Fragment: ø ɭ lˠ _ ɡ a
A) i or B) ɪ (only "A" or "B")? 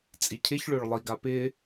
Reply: A